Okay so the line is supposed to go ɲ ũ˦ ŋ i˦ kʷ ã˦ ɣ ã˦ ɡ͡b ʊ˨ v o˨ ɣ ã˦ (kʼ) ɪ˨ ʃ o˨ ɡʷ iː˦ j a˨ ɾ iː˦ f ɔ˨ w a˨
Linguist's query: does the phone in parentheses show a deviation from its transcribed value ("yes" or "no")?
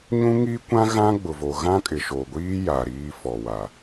no